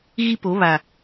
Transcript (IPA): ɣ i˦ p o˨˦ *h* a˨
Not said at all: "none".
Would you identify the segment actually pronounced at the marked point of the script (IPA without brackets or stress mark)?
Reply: β